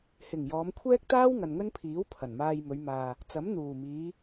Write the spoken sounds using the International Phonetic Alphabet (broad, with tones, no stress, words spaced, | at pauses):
hɪ˨˩ŋ jɔː˨˧mkʷʰɛː˥k̚t̪aː˥w ŋɐ˨nŋɵ˥npʰiː˨˥w pʰɐ˨˩nmaː˧jmɵ˨˧ɥmaː˨ | t͡sɐ˨˥m n̪uː˨˩miː˨˧